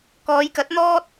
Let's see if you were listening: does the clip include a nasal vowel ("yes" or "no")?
no